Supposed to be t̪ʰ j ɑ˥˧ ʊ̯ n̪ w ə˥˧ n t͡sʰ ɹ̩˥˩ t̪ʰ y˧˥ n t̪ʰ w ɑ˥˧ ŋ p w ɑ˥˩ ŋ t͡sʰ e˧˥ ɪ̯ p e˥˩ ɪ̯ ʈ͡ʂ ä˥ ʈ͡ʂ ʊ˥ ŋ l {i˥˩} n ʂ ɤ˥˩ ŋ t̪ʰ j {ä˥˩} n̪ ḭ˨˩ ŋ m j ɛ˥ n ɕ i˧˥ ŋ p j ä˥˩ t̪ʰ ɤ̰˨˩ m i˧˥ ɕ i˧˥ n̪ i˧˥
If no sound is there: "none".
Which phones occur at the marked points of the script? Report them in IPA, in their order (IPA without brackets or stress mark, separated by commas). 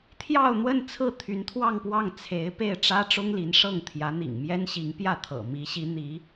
i˧˥, ä˧˥